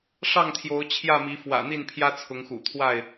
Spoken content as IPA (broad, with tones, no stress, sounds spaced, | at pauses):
ʂ ɑ˥˨ ŋ t̪ʰ j o˨˦ ʊ̯ t͡ɕʰ j ä˥˨ m i˨˦ f w ä̰˨˩ n̪ i˥˨ n pʰ j ä˦ t͡sʰ ʊ˨˦ ŋ x ṵ˨˩ t̪ʰ w a˥˨ ɪ̯